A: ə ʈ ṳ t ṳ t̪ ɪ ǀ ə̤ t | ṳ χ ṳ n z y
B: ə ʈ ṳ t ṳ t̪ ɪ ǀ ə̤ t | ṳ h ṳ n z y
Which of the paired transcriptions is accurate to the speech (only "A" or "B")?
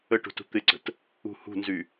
B